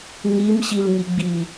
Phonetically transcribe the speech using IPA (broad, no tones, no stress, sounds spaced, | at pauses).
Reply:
ŋ i m ɕ i l ŋ i ɡ͡b i